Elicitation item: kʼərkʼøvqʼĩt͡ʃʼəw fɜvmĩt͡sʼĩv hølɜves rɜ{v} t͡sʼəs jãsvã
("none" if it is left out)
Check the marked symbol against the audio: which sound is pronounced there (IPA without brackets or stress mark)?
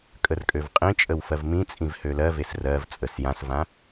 v